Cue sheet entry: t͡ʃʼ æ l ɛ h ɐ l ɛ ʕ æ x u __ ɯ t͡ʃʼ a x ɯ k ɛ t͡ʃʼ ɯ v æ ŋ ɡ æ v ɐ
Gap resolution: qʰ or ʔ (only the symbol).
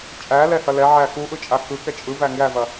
ʔ